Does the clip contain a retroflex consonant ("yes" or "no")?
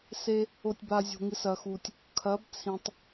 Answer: no